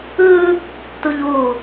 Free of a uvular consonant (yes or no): yes